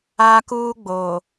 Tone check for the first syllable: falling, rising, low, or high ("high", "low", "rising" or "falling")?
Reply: high